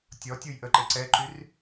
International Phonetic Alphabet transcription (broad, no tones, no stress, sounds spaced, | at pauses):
tʲ ɔ tʲ u j ʔ ə ǃ e ǀ ɛ ǃ y r